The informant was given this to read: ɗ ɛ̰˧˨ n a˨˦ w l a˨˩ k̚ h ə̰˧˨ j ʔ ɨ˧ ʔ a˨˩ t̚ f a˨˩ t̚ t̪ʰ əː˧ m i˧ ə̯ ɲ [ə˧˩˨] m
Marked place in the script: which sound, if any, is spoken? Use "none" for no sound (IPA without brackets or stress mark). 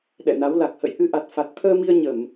ə˧˩˨